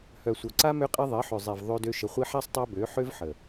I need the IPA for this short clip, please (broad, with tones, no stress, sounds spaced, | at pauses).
h œ˨ sʷ œ˨ ǀ a˦ m ø˦ qʼ e˦ ðˤ e˨˦ ħ ø˨ zˤ e˨ v ðˤ ø˧ d ø˧ ʃ ə˨ χʷ i˧ ħ a˦ sˤ tˤ a˦ b ø˨˦ ħ ø˦ v ħ ə˨